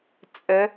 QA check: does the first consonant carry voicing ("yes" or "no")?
no